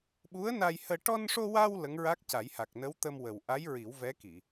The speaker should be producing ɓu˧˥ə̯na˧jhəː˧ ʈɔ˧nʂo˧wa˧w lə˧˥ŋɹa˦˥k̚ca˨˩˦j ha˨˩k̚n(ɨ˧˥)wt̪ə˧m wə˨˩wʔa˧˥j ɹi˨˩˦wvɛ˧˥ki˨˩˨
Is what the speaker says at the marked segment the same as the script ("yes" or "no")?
no